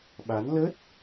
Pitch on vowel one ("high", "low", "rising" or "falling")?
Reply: rising